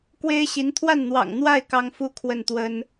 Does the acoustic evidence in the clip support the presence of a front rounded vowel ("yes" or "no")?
no